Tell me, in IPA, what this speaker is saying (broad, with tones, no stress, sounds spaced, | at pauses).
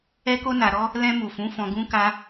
ɛ˦ k o˦ n a˧ ɾ ɔ˦ | l ɛ̃˧ m u˨ f ũ˨˦ f ɔ̃˧ ɡ ũ˦ k a˦